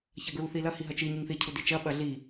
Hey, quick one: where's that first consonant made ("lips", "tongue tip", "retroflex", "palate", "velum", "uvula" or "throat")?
palate